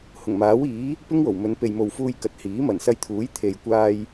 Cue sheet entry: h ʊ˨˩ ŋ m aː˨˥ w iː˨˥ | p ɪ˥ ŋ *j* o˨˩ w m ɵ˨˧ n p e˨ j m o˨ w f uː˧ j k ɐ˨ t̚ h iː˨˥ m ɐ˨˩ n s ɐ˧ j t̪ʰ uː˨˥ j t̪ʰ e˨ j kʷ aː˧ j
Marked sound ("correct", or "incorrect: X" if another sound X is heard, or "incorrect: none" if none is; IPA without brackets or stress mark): incorrect: w